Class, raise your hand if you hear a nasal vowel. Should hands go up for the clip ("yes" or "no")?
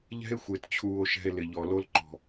no